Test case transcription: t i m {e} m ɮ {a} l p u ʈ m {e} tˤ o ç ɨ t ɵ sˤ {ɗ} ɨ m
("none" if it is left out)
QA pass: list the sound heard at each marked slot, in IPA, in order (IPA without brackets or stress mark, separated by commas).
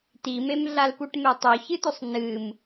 e, a, e, n